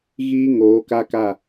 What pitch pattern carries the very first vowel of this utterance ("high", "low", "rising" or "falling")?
high